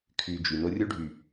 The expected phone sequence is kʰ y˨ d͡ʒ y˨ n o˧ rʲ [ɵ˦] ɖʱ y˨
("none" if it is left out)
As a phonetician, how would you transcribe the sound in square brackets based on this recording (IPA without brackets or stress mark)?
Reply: o˦